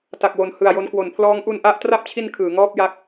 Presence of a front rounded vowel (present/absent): absent